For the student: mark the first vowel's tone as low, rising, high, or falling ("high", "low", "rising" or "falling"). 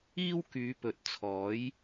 high